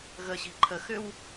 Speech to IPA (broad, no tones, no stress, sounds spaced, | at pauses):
ɣ ə ɕ i̤ ǃʰ ə x ʏ w